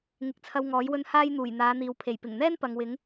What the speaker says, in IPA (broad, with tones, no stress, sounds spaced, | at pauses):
ŋ ɪ˨˥ k̚ t͡sʰ ɐ˧ w ŋ ɔː˨˥ j w ɵ˧ n h aː˥ j n̪ uː˨˩ j n̪ aː˨˧ n̪ iː˨ w pʰ e˨˩ j p ɪ˨˩ ŋ n̪ ɛː˥ n p ɐ˨ ŋ w ɪ˨˥ ŋ